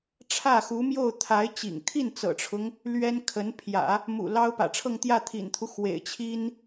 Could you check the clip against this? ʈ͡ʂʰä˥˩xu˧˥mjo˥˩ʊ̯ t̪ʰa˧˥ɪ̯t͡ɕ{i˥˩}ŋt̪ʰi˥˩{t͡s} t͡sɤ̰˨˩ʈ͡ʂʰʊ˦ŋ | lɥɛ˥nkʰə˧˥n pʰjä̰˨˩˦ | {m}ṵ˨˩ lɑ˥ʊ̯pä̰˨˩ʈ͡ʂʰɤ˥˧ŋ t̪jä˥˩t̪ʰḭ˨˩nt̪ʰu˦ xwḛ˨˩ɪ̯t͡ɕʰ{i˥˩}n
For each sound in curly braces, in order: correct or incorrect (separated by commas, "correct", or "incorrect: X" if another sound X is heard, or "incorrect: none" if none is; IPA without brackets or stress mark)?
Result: incorrect: ḭ˨˩, incorrect: n, correct, incorrect: i˥